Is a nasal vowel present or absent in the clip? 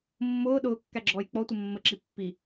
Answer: absent